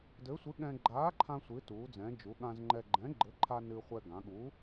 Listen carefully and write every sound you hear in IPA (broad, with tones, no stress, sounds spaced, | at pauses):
d ɘ˨˥ sʷ ɨ˨˥ ɠ ɛ̃˧ ɡ͡ǃ aː˨˥ ǃʰ ã˧ sʷ ɨ˩˧ t uː˩˧ d͡z ɛ̃˩˧ d͡ʒ u˩˧ ɠ ã˧ z ŋ͡ǃ ɛ˧ ɡ͡ǃ ɛ̃˨˥ ɡ͡ǃ ɘ˨˥ ǃʰ a˧ n ɨ˧ χʷ ɛ˧ ɡ ã˩˧ ɠ uː˨˥